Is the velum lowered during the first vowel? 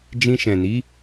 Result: yes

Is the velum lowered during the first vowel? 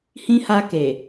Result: yes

